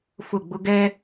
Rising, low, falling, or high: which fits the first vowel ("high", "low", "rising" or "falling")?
falling